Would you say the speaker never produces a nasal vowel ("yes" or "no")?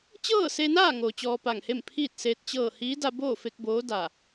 yes